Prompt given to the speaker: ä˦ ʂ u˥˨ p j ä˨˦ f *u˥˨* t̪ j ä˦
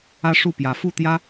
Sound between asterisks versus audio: correct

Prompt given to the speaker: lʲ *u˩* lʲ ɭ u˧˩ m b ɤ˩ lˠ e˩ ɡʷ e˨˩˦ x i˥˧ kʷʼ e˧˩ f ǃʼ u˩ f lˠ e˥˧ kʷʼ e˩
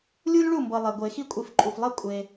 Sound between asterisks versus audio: incorrect: u˧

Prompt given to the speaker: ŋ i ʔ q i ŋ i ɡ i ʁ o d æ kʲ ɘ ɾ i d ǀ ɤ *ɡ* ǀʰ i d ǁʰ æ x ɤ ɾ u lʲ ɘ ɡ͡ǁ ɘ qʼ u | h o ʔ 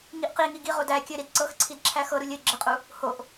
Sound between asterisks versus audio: incorrect: x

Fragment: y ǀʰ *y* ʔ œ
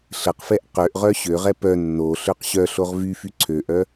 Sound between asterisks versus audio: incorrect: ø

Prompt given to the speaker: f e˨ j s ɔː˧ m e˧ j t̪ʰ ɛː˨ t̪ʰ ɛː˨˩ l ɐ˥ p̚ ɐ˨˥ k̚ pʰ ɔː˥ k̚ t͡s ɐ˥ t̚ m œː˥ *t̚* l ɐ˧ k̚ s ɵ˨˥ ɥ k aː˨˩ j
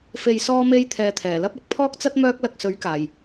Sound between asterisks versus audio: incorrect: k̚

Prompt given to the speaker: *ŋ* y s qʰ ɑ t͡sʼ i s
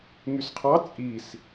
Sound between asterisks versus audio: correct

